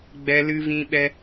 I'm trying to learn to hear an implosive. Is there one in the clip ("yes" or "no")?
yes